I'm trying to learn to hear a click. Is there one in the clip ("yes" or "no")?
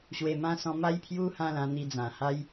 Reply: no